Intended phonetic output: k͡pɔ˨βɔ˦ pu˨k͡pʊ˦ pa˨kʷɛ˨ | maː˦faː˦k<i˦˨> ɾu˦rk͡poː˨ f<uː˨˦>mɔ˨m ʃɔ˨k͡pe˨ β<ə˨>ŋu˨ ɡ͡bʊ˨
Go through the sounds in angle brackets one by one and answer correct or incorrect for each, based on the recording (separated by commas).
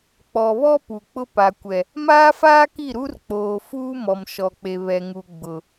correct, incorrect, incorrect